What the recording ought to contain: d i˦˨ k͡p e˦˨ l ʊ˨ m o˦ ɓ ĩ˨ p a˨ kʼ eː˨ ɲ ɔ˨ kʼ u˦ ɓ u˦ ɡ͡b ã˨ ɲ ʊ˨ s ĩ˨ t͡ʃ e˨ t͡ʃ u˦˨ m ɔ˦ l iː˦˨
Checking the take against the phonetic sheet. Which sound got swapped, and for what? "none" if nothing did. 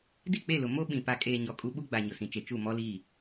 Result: ã˨ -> a˨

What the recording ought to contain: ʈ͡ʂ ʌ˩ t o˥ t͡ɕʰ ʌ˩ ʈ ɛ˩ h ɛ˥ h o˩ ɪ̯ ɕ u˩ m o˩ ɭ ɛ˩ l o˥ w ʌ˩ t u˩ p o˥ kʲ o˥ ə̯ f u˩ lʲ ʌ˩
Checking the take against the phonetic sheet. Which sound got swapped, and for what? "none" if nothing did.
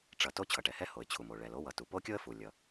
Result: ɕ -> t͡ɕʰ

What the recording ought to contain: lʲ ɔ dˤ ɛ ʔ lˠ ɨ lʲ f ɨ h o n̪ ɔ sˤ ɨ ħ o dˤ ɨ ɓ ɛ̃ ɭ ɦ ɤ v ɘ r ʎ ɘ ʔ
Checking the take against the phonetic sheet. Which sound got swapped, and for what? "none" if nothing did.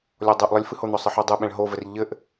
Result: ɤ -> o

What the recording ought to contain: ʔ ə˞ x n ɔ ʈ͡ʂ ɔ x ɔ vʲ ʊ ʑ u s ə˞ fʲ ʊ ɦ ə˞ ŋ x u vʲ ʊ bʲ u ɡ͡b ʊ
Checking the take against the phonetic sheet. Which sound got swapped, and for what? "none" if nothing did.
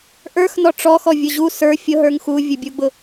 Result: none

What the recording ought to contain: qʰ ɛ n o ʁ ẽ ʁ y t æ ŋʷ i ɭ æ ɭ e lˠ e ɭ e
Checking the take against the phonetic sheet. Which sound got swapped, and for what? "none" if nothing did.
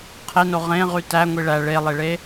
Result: ɛ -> e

